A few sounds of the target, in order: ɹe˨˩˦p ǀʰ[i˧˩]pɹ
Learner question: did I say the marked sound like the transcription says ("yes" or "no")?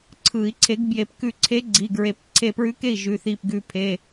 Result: no